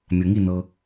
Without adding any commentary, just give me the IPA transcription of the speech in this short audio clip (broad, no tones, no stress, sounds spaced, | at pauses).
mʲ ɤ ŋ i n ɤ